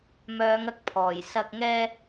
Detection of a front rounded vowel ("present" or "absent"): present